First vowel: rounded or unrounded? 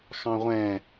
unrounded